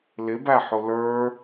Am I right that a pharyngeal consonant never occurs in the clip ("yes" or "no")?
no